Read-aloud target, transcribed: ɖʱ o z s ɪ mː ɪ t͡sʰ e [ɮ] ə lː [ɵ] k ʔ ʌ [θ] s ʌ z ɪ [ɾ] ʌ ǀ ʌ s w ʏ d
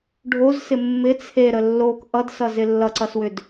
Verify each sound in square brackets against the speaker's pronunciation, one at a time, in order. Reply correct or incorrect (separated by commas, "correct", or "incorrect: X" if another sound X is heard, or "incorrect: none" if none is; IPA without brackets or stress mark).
incorrect: ɾ, incorrect: o, incorrect: d, incorrect: lː